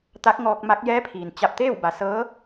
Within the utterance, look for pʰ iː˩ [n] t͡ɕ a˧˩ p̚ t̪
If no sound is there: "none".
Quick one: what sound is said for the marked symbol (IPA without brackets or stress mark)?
n